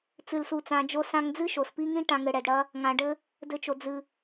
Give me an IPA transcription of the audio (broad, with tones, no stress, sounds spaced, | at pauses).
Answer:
t͡s ɨ˨ l s u˨ t͡s ã˨ d͡ʒ o˧ s ã˧ ŋ d͡z ɨ˦ ʃ o˨ s p i˦ ŋ ĩ˦ ʈ ã˧ ŋ ɘ˧ ɽ ɛ˨ d ɽ ɐ˦ | ŋ ã˨ ɖ ɘ˦ | d ɘ˧ t͡ʃ o˨ d͡z ɨ˨